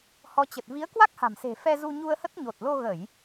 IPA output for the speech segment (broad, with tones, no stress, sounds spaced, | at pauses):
h ɔ˨˦ t͡ɕ ə˨˩ t̚ v i˨˦ ə̯ k w a˦˥ k̚ h a̤˨˩ m s e̤˨˩ f ɛ˧ z u˧ ɲ u˧ ə̯ h ə˦˥ t̚ ɲ o˨˩ t̚ l o˧ ɣ ə˧˩˨ j